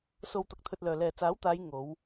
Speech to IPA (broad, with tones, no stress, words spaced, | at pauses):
so˧wt̪ɐ˨˥k̚t̪ʰɵ˧t̚lœː˨ lɛː˨ t͡saː˨˥wt̪aː˨˧j ŋo˨˧w